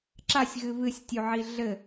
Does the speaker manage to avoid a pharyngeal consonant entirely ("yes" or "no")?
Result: no